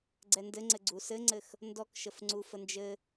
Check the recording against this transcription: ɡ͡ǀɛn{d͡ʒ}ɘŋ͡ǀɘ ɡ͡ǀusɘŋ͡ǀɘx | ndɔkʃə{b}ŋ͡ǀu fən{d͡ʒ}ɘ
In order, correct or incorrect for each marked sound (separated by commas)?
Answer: incorrect, incorrect, correct